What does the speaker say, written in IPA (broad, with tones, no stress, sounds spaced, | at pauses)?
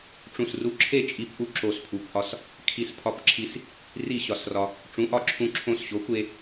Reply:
ʈ͡ʂ ũ˧˩ s r u˧ ǁʰ e˥˨ t͡ʃʼ i˧ p ʔ u˧ ǁ o˧˩ s pʰ u˩˥ p ʔ ɒ˧ s | kʰ i˧ s pʰ ɒ˧ p ǁʰ i˧ s | r i˥˨ ɕ ɒ˧˩ s r ɒ˧ | ʈ͡ʂ ũ˩˥ ʔ ɒ˧˩ ǁʰ ũ˧ ǁʰ õ˧ s ɕ o˩˥ kʷ e˧